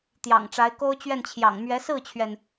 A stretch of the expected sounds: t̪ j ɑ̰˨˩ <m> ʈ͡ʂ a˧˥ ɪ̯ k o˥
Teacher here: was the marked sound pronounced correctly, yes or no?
no